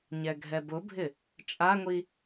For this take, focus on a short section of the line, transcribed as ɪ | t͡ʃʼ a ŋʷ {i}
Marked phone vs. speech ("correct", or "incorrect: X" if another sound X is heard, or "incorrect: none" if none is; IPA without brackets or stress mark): correct